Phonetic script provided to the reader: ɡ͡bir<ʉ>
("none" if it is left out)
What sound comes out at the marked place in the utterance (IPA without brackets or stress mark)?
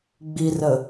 ə